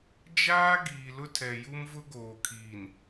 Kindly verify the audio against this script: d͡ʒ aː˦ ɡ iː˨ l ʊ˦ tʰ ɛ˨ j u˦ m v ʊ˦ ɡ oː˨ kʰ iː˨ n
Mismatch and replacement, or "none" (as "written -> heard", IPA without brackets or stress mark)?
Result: none